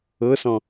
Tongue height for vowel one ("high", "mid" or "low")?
mid